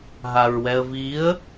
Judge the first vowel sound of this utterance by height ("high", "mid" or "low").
low